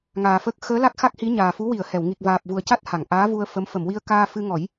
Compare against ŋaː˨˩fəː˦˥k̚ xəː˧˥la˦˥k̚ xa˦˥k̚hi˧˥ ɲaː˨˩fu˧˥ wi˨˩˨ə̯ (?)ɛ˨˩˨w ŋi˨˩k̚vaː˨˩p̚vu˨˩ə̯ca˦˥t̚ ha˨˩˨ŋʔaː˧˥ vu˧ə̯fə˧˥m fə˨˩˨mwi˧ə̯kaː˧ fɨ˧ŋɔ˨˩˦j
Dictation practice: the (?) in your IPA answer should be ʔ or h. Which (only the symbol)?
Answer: h